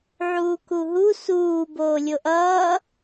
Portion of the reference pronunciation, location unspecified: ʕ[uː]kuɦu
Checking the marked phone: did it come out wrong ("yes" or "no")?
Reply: no